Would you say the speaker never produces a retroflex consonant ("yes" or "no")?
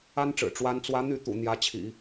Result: no